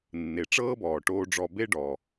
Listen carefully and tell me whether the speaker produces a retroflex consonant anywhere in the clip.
yes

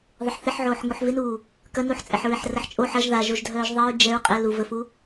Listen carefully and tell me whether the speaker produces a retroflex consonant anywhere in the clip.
no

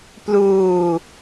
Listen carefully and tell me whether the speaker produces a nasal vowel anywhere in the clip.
no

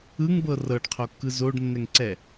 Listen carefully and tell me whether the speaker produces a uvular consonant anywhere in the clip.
yes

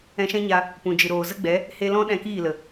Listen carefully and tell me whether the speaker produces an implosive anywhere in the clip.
yes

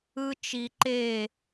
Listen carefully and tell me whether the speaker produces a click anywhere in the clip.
yes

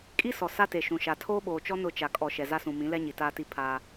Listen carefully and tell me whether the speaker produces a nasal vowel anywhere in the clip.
yes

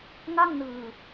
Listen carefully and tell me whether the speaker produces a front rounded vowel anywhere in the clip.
no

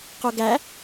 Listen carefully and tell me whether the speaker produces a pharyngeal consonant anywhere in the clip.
no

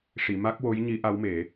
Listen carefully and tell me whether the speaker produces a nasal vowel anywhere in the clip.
no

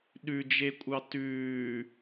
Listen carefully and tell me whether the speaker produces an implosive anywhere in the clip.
yes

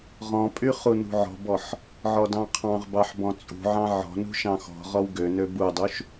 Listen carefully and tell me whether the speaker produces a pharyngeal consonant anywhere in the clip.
yes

